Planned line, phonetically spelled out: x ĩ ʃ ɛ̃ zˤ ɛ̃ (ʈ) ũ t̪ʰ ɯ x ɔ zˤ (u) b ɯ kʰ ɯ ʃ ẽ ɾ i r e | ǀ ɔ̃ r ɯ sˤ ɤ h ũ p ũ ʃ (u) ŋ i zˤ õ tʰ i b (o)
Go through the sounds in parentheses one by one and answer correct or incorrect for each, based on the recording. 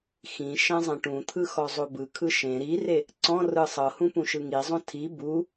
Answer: correct, incorrect: o, incorrect: ɯ, incorrect: u

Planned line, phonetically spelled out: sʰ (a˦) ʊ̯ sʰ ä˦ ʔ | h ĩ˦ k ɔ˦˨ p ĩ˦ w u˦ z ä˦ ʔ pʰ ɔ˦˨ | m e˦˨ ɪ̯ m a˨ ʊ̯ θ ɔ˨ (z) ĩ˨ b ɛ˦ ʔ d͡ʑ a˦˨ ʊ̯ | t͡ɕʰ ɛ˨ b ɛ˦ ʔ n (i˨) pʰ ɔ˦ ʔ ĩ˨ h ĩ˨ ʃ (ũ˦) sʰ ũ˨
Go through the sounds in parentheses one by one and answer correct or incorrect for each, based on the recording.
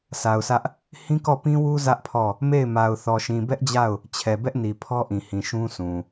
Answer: incorrect: a˨, incorrect: ʃ, correct, correct

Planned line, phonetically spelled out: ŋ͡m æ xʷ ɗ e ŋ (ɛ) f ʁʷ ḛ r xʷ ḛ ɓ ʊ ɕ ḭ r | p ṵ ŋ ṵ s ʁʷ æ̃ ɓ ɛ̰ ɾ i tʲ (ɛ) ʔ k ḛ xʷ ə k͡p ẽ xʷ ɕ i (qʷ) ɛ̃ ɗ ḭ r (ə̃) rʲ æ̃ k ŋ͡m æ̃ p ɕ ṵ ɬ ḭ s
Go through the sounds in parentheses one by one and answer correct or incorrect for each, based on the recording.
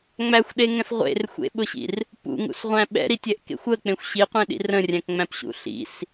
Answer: incorrect: ɛ̃, correct, correct, correct

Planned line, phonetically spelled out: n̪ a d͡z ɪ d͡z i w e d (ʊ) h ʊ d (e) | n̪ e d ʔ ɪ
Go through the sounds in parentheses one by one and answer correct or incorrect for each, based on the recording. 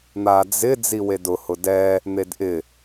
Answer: correct, incorrect: ɛ

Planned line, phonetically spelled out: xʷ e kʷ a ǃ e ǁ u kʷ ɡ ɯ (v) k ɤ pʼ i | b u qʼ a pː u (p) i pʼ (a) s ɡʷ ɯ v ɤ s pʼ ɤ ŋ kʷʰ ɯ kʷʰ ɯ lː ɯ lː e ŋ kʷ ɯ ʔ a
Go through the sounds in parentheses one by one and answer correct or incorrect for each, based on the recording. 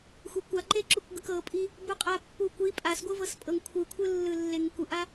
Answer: incorrect: none, incorrect: kʷ, correct

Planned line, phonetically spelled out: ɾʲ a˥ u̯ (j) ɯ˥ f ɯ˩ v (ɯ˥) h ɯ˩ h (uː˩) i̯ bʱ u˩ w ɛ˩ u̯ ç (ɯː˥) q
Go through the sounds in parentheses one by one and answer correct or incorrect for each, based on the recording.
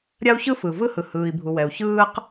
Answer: incorrect: ç, correct, incorrect: ɯː˩, correct

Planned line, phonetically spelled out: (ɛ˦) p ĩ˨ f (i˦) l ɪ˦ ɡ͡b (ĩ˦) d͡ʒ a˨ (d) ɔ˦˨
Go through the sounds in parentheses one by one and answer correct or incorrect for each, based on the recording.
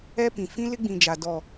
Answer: correct, incorrect: ĩ˦, incorrect: ĩ˨, correct

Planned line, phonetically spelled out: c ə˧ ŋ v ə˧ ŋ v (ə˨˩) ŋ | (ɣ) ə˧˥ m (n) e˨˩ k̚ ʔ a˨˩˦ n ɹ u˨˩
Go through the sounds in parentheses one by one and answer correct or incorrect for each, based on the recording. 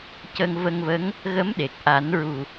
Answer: incorrect: ə˧˥, correct, incorrect: ɗ

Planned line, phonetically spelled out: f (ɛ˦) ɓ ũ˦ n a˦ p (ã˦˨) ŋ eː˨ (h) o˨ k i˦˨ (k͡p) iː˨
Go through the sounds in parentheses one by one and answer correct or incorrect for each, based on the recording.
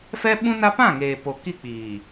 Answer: correct, correct, incorrect: p, correct

